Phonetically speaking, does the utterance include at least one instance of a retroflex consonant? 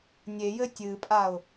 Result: no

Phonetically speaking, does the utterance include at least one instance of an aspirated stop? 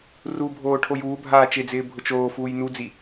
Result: yes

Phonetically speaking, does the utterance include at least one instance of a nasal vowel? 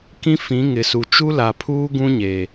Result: yes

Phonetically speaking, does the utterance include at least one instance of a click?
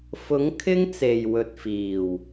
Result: no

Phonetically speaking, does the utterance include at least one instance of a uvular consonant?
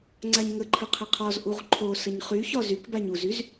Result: yes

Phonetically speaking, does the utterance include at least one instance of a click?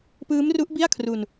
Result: no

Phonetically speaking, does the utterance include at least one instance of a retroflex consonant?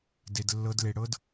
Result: yes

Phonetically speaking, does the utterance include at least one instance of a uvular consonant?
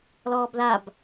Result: no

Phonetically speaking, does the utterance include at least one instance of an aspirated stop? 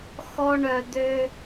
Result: no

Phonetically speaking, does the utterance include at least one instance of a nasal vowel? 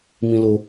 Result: yes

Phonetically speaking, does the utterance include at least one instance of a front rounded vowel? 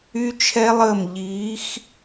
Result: yes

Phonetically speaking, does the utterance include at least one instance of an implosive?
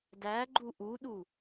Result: yes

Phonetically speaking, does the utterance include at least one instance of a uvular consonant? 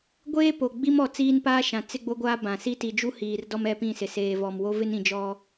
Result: no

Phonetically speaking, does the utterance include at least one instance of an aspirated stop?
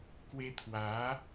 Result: yes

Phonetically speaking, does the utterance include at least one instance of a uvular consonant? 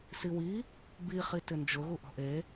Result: yes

